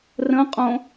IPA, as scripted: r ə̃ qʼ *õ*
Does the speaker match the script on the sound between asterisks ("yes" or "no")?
yes